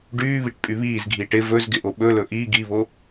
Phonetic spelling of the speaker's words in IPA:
ɖyːβiʈ pʼyβiːzɡʱiːʈ ɪ vɵz ɡɪʔoɓɵlɵ ʔi ɡiβo

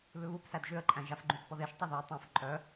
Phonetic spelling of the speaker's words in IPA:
βʏβupsæd ʒʏə̯ǃʼæ̃ʒafɡ͡ǃũt pɔðeʃtˤuðʏə̯ tˤũf ǃʼœ

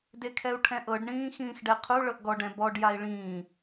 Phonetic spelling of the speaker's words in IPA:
dekʰɛu̯ʈʰɛ̃ʔɤɖ ɳĩːxĩːxɖɛqʰu ɭɤʔɡɔɖ ɛ̃bɔɖ jai̯ɭĩː

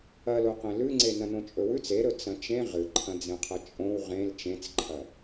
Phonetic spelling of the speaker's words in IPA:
ɐloqẽ lʉŋ͡ǀe nɐ̃nõt͡ʃʼɵwʉt͡s eɾɵ t͡sɐ̃t͡ʃẽ ʁɨǃʰɐ̃d͡zẽqʰɐ t͡ʃʼõw ʁẽl t͡ʃẽt͡sǃʰɐ

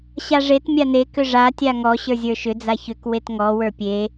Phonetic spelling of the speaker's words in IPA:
ɕaʐet mʲane kʏʐa tʲaŋɔ ɕə˞zʲə˞ʃʏ d͡zaçʏk wetŋɔ wə˞pʲe

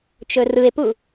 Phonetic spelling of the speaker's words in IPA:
t͡ʃɵrɯe̯pu

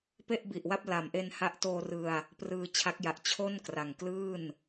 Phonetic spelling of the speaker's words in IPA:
pe˥˩ʔbi˨˩ʔ wa˥˩p̚la˩˦mʔe˧n ha˦˥ʔtoː˧rɯ˧a̯ | prɯː˧t͡ɕʰa˦˥k̚ja˨˩ʔ t͡ɕʰo˥˩nkra˨˩ŋ klɯː˥˩n

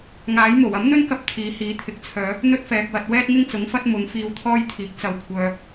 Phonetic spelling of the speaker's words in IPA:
ŋaː˨˥jmo˨˩w ɐ˨˥mn̪ɵ˥nkɐ˧p̚ t̪ʰiː˨˥hiː˨˥ t̪ʰɪ˨k̚t͡sʰœː˨˧ | n̪ɵ˥t̚fɛː˨k̚wɐ˧t̚ wɛː˥t̚ŋɪ˥ŋt͡sʊ˨˥ŋfɐ˥t̚ mʊ˨˧ŋfiː˧w t̪ʰɔː˥jt̪ʰiː˨˥k̚ t͡sɐ˧wkʷʰœː˧

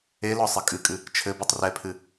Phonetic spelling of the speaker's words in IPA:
elɔ sˤɨkʼɨkʼɨ | t͡ʃʰɘbutˤ rɛpʰɨ

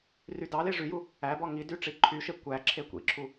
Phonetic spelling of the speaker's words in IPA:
rydɑle ʐyju | æbɔ ŋidy ʈ͡ʂiǃʰyʃe kʷæ ǁʰekʷḭǁʰu

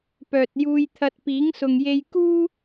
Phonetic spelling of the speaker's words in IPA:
pœː˨t̚ juː˧jt̪ʰɐ˧t̚ piː˨˥ŋsʊ˨ŋje˧j kuː˥

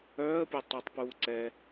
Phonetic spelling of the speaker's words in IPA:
œːə̯pʲœ tˤutˤpuː ǀɛ

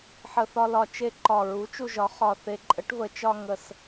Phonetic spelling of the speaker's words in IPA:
ħə˨˩θɒ˧lɒ˨˩t͡ʃe˧ ǃɒ˨˩ɹu˩˥t͡ʃu˧ʒɒ˩˥ χɒ˨˩θe˨˩ǃʼə˩˥ʈ və˨˩t͡ʃɒ˧ ŋə˨˩s

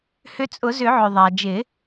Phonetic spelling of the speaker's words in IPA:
hʏ˧t͡sʼʊ˨˩˦zʏ˨˩˦ʕʏ˩ ðˤa˩ d͡ʒɪ˨˩˦

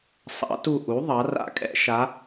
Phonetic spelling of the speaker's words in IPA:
sˤɑ̰˩˥tu˦˨ ʔu˩˥ ðˤɑ˩˥ ra̰˦˨kʼɛ̰˩˥ ʃa˧˥

